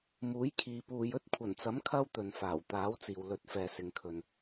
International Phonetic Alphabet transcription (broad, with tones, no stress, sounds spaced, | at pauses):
m uː˨˥ j kʰ iː˨ p uː˨ j ɵ˥ t̚ kʷʰ ɐ˨˩ n t͡s ɐ˨˥ m kʰ ɐ˥ w t̪ ɵ˨ n f aː˨˩ w t̪ aː˨˥ w t͡s iː˨ w l ɵ˨˥ t̚ f ɛː˨ s ɪ˨ ŋ kʰ ɵ˨ n